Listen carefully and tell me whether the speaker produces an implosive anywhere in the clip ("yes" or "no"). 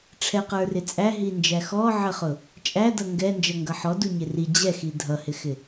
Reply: no